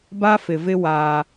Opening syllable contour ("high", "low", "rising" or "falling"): high